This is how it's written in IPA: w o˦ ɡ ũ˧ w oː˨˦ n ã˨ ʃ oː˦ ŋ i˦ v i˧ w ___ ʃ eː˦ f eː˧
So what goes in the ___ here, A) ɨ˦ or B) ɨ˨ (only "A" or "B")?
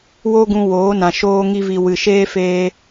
B